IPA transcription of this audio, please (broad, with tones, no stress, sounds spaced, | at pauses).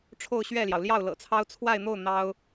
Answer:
ʈ͡ʂʰ o˥˧ ʊ̯ ɕ ɥ ɛ˥˩ l j ɑ˩ ʊ̯ l j ɑ˥˩ ʊ̯ l ɤ̰˨˩ t͡sʰ ɑ˥ ʊ̯ t͡sʰ w a˥˧ ɪ̯ n̪ o˥˩ ʊ̯ n̪ ɑ˥ ʊ̯